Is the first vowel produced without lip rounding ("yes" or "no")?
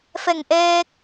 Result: yes